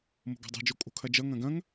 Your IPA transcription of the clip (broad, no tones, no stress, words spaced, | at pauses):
mo̤ɡo̤dˤɛ̤d͡ʒo kʼo̤kʰɐd͡ʒʌ ŋɐ̃ɡɐ̃ŋ